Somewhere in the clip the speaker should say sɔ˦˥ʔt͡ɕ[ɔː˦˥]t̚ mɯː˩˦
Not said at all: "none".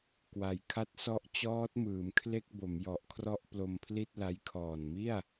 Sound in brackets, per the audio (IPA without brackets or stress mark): ɔː˦˥